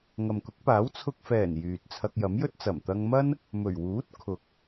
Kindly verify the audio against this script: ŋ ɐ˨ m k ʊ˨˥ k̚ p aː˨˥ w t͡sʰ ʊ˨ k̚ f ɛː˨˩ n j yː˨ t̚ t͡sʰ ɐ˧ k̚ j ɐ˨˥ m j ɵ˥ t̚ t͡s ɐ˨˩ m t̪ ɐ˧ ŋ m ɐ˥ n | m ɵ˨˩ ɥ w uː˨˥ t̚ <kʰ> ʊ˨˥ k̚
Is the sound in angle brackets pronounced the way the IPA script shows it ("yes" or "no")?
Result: yes